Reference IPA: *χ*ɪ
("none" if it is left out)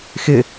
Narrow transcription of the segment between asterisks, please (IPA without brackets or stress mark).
x